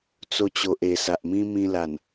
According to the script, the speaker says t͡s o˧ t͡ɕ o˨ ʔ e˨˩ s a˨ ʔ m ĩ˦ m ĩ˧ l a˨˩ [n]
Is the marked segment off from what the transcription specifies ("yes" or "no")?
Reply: no